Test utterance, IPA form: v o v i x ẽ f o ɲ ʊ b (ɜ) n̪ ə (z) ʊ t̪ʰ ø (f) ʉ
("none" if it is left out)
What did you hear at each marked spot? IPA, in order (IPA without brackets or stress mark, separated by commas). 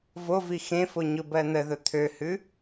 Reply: ɜ, ð, h